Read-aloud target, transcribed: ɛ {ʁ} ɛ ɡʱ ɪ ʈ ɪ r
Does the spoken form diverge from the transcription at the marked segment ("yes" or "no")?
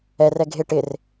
yes